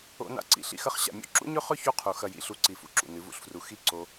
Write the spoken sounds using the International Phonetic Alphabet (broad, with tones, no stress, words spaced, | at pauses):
o̰˧na̰˧ǀḭ˨ ɬḭ˨xɐ˧χɕa̰˨mʲo̰˦ ǁṵ˦ɲɵ˦ χɵ˦ çu˦qʰu˨ xɐ˨jḭ˨ɬu˨ ǀi˨ fṵ˧ǁṵ˨ nɨ˨˦vṵ˧ɬfru˧ xi˦ ǀo˧